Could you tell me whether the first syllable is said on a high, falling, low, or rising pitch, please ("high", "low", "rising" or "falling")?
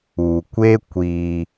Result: low